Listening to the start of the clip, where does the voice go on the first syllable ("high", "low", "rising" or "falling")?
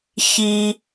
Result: high